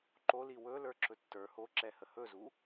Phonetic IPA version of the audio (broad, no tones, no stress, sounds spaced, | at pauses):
ǃ o l i w ɵ l ə˞ ǁ ɵ tː ə˞ h o ǁ ɛ h ə h ɵ z u